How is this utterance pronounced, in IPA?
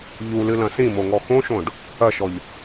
ʎulɨlɐ̃ sĩmoŋɔ xõʃõɖ | ɐʃɔʎ

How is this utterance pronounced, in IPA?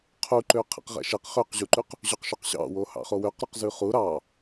qʰuǃø qʰɛ̰qʁɛ̰ʃɛq χøqʑuǃʉq | ʑɵqʃɵqɕɑ̰wo hɑ̰χowøqɾuq zʉχu ɾɑ

